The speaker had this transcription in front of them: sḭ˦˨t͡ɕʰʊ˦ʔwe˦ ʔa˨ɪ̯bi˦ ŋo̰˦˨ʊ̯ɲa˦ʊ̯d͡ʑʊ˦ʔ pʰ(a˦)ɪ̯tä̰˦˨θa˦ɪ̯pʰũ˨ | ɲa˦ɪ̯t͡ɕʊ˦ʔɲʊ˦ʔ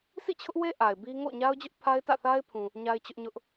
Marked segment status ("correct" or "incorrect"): correct